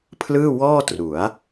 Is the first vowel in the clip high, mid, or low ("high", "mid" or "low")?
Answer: high